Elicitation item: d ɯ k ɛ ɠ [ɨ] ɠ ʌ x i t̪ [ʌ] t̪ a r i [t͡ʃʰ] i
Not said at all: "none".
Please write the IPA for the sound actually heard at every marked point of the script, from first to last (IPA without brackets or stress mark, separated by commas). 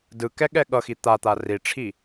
ɛ, a, ʈ͡ʂʰ